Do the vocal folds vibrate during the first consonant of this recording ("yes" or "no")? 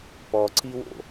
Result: no